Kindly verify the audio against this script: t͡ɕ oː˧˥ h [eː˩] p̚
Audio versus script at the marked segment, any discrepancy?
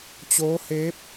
yes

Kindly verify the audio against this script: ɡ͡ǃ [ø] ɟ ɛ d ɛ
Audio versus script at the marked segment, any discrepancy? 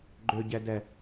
no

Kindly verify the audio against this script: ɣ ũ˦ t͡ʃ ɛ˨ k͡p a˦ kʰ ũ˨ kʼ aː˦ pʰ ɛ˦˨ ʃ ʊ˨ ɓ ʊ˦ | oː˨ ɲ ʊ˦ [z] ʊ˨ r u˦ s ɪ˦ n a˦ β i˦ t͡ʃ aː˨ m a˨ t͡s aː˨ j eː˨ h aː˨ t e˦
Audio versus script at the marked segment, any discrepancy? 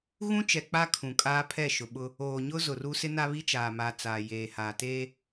no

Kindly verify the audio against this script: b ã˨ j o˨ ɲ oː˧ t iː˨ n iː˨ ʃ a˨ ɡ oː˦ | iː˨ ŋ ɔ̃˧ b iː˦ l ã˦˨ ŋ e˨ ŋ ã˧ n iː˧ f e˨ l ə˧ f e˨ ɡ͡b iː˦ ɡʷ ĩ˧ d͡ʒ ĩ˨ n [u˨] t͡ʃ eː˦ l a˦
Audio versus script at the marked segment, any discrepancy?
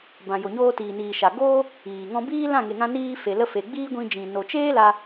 yes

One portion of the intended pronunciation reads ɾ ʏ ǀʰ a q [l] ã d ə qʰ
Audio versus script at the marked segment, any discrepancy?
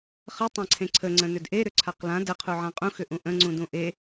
no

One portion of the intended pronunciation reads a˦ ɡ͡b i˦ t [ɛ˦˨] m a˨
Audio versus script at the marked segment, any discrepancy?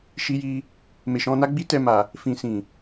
yes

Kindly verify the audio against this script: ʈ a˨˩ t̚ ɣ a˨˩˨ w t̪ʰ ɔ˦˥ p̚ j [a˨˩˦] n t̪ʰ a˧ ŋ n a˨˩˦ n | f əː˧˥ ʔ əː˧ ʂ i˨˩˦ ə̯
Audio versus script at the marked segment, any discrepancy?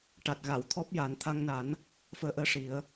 no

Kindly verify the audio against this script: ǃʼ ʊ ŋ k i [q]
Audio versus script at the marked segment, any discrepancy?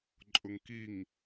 yes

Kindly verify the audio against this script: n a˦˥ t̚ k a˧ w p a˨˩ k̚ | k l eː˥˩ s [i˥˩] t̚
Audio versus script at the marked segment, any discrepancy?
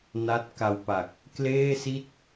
no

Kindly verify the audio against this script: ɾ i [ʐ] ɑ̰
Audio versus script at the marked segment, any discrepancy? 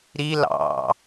yes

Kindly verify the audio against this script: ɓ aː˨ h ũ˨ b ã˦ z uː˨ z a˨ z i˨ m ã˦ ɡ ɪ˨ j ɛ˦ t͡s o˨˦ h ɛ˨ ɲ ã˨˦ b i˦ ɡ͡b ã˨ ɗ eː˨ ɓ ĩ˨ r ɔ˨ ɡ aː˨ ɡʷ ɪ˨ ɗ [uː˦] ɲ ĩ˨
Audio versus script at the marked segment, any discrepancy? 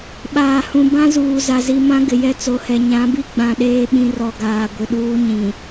no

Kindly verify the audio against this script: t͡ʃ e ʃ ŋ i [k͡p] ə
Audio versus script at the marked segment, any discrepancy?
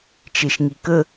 yes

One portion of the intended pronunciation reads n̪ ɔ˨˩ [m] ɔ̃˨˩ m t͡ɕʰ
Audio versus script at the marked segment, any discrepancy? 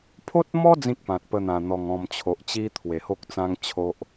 yes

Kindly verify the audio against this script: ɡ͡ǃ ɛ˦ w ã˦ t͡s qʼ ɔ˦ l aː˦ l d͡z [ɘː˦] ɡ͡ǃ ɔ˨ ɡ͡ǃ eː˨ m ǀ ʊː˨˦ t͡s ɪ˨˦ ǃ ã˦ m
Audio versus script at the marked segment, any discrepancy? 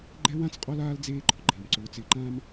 yes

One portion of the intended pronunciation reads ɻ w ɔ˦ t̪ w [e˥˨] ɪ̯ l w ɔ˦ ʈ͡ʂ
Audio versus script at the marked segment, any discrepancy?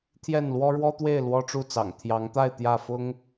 no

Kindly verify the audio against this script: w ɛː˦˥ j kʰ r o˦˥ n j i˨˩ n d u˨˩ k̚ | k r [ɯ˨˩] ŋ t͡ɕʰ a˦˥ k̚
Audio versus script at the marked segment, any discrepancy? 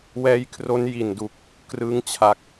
yes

